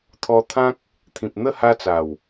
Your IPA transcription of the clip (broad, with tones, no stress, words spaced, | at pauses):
t̪ʰɔ˧t̪ʰã˦k̚ | t̪ʰĩ˨p̚n̪ə˥˧ ha˦t͡sa˨˩w